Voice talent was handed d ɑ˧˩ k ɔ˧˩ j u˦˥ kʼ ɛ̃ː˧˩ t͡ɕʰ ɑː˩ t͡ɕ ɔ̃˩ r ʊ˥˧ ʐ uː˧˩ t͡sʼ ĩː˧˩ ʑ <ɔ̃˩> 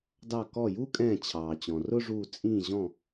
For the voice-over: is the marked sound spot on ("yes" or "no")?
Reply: no